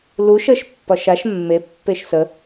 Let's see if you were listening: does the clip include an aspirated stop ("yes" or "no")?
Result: no